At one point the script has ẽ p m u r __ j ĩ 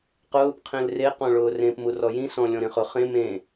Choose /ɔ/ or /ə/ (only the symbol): ɔ